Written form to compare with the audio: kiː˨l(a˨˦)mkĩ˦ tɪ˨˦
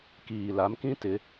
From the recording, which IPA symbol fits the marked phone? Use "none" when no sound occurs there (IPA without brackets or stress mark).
a˨˦